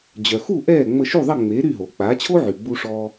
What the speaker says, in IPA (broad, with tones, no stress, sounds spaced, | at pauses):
d͡ʑ œ˩ x u˥˩ ʔ ɛː˥˩ ŋ͡m ə˧ ʃ u˥˩ ðˤ ə˥˩ ŋ͡m eː˩˥ ɾ y˥˩ ɦ o˩ k͡p aː˩˥ t͡ɕʰ o˥ ʕ y˩ ɡ͡b u˧ ʂ ɔ˧